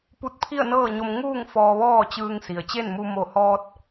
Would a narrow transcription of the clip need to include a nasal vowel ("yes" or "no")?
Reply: no